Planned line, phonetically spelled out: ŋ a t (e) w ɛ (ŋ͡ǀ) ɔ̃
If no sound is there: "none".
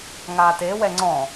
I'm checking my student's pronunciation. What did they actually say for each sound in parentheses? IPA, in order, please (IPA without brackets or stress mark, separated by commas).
e, ŋ͡ǀ